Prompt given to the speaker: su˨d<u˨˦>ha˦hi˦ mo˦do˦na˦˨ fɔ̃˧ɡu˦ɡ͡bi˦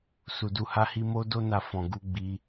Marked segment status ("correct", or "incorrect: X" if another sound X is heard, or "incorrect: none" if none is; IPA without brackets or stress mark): correct